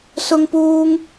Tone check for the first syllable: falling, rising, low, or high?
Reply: high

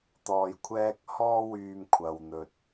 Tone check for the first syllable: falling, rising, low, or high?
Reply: low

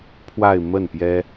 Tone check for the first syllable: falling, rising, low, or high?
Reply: falling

